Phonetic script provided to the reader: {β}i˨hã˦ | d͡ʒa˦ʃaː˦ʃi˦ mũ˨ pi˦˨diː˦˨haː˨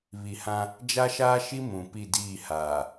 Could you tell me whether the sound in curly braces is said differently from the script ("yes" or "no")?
no